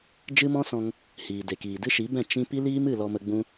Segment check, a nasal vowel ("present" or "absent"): present